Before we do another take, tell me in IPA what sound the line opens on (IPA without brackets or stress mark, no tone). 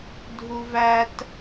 dʱ